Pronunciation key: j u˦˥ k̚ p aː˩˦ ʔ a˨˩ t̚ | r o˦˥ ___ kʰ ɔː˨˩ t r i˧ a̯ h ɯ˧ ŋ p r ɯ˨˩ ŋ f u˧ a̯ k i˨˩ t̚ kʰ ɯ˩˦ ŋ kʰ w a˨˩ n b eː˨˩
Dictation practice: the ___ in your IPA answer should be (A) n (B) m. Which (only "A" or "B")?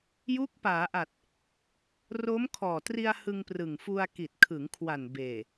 B